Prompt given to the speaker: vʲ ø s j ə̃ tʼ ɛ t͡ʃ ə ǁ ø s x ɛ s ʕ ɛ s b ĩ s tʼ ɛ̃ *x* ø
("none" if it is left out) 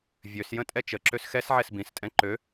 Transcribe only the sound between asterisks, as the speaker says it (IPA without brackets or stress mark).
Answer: ǃ